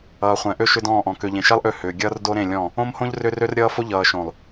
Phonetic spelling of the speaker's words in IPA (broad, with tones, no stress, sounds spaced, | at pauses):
ʌː˨ χʷ ɛ̃˨ ʔ ø˦ ʃ ʏ˦ d ɔ̃ː˦˨ ʔ ɔ̃˨ k ø˨ ʎ ẽ˨ ʃ ɛ˦ lˠ ʔ ø˦˨ h ʏː˨ ɡʲ ʌː˦ r d o˦ ɾ ẽ˦˨ lʲ ɔ̃˦˨ | õ˦ m h õ˦ ʎ r ʏ˦ r ø˦ r ɾʲ ʌː˦ f o˦ ʎ ʌː˨ ʃ õ˨ lˠ